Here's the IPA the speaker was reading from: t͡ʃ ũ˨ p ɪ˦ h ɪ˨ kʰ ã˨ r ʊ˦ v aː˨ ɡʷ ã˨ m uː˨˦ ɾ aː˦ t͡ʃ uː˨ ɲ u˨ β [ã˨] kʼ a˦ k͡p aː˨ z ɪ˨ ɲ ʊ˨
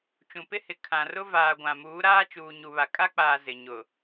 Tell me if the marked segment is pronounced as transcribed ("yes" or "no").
no